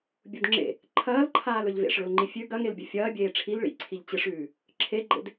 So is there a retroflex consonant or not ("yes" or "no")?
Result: yes